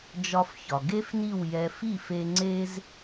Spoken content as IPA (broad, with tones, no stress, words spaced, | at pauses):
d͡ʒɒ˧fçɒ˩ ɡe˥fni˥˩wjɛ˧ fi˥˩fe˧ ŋ͡ǀe˧z